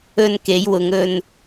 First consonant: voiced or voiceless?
voiced